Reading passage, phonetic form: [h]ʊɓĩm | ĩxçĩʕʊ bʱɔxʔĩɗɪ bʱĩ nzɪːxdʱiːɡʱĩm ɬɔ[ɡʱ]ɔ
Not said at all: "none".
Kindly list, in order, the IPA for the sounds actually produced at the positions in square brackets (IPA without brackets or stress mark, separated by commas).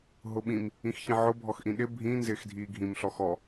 ɦ, x